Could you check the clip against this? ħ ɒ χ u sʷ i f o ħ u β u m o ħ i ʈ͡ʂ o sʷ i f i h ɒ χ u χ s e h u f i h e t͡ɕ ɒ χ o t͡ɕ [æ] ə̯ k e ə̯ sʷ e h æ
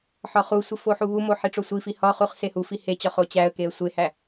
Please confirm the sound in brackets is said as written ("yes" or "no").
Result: yes